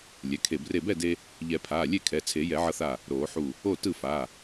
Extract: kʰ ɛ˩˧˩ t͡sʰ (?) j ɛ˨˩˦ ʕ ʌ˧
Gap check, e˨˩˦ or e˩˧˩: e˨˩˦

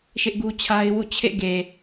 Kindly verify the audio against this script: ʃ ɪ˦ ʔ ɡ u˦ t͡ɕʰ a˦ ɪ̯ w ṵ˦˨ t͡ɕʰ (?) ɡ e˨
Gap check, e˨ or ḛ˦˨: ḛ˦˨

